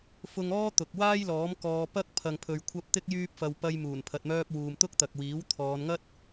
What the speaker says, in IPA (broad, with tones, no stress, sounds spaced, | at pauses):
f ʊ˧ ŋ ɔː˥ t̪ ʊ˨ k̚ w aː˥ j l ɔː˨˥ m k ɔː˧ p ɐ˥ k̚ pʰ ɐ˨ ŋ pʰ ɵ˨ ɥ kʷʰ ɐ˧ p̚ t̪ ɪ˥ k̚ j yː˥ p̚ f ɐ˧ w p ɐ˧ j m uː˨˩ n pʰ ɐ˨ t̚ m œː˧ p̚ w uː˨ m t̪ ʊ˥ k̚ t̪ ɐ˨ k̚ w iː˨˥ w t̪ʰ ɔː˨˧ n ŋ ɐ˥ t̚